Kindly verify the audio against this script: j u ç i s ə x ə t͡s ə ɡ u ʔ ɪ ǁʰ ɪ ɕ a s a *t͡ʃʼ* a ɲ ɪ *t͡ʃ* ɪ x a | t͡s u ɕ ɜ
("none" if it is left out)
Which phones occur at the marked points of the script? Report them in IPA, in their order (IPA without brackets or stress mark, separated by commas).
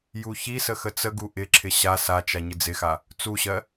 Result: t͡ʃ, d͡z